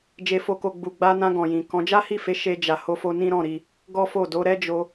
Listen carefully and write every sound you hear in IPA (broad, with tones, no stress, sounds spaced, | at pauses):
d͡ʒ e˧ f o˧ k o˧ ɡ͡b u˨ ɡ͡b a˧ n ã˧ ɡ ɔ̃˨ j ĩ˨ k ɔ̃˨˦ d͡ʒ a˦ h i˦˨ f e˨˦ ʃ e˧ d͡ʒ a˨ h o˧ f o˧ n ĩ˦ ɾ ɔ̃˦˨ ɾ i˧ | ɡ ɔ˦ f o˦˨ d o˨˦ ɾ ɛ˦ d͡ʒ o˧